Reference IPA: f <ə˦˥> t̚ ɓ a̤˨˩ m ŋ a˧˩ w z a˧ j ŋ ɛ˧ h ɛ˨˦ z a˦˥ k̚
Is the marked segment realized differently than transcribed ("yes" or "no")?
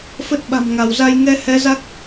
no